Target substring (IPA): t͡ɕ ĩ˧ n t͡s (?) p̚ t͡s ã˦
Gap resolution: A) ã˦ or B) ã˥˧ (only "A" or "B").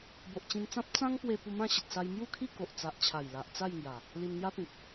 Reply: A